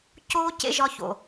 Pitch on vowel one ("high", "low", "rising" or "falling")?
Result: high